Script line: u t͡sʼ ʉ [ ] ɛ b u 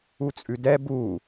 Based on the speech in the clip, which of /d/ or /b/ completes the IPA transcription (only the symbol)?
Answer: d